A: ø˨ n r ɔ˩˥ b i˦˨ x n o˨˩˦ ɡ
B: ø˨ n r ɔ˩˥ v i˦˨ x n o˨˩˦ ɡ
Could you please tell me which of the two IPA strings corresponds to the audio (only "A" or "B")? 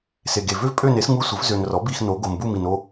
A